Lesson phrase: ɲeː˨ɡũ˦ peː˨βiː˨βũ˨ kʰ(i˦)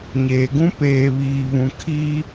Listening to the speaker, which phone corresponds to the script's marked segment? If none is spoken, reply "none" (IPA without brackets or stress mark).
i˦